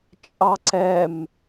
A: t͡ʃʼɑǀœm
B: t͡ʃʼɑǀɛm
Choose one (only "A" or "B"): B